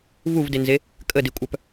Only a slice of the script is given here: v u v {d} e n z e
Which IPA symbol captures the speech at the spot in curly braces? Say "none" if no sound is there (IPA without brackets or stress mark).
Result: d